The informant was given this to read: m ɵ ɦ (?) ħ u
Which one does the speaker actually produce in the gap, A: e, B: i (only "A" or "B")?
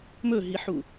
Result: B